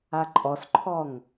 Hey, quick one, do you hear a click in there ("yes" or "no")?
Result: yes